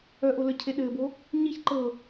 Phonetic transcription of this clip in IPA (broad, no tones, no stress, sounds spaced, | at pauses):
œ ʔ o l œ cʰ e ɗ ɘː b o | ɲ i ç ǃ ɤ